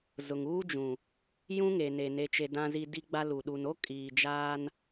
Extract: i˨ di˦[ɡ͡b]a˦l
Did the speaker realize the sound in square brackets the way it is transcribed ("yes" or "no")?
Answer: yes